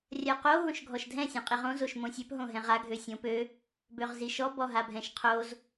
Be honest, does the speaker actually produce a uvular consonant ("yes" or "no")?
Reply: yes